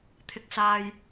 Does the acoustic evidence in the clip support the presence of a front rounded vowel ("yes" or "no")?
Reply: no